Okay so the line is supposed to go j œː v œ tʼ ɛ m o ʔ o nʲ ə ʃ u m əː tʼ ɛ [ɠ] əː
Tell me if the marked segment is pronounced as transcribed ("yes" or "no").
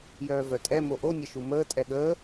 yes